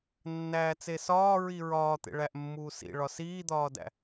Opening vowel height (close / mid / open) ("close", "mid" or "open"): open